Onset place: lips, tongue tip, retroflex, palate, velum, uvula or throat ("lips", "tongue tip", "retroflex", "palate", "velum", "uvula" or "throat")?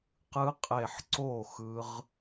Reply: uvula